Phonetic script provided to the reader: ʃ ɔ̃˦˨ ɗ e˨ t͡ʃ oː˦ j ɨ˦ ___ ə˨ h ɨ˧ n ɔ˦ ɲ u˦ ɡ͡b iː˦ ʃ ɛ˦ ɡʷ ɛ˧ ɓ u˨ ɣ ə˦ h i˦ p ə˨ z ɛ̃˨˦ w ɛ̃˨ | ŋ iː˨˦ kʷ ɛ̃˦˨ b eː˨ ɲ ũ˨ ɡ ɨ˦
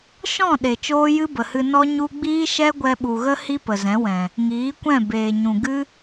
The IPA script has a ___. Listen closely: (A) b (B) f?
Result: A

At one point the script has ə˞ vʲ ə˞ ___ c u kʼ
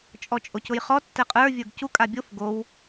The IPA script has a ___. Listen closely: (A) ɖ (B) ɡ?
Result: B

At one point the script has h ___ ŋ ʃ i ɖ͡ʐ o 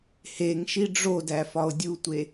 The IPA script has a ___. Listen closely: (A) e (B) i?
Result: A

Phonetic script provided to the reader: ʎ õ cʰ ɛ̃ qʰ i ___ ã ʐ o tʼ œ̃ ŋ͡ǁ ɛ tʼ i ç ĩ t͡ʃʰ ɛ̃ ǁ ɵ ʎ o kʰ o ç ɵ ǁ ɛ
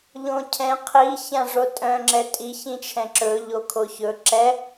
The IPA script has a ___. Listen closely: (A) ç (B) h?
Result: A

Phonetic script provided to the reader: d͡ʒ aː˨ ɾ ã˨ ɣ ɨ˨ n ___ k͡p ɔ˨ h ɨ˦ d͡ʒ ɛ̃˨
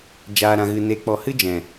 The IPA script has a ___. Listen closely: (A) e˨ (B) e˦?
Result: A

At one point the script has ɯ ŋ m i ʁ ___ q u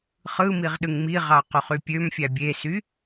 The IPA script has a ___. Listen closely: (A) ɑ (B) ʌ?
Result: A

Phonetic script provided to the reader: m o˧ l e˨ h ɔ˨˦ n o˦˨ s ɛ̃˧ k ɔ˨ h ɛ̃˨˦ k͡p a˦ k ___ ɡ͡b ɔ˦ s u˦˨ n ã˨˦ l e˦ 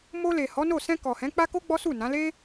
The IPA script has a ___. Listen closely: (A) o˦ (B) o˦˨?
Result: A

